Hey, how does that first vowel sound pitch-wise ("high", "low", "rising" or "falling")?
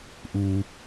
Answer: low